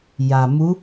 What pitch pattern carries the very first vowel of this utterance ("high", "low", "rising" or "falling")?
low